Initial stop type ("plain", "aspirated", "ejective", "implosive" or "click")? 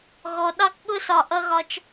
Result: implosive